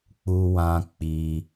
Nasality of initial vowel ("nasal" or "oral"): oral